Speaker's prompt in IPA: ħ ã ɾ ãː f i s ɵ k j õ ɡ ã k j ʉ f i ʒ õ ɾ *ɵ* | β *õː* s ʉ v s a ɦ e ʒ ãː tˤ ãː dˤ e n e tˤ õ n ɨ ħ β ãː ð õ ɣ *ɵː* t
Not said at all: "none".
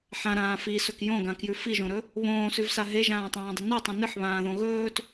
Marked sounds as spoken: ɵ, õː, ɵː

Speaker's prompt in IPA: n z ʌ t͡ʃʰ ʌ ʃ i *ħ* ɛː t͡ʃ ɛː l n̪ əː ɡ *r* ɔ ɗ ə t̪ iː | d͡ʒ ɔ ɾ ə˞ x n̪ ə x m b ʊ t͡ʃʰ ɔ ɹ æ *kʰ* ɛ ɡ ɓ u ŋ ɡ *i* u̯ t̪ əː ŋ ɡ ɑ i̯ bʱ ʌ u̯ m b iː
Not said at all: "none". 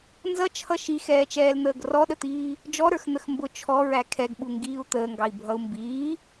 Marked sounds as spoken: x, r, kʰ, iː

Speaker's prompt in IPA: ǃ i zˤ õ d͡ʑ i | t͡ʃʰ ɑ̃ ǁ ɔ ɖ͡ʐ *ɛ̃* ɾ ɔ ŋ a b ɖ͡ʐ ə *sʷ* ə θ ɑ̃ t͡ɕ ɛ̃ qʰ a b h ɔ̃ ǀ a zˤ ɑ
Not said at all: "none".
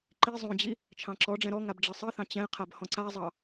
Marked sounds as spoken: ɛ̃, sˤ

